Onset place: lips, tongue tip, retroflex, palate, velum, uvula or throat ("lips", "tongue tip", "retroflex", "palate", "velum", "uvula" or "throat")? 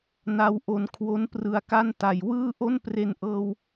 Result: tongue tip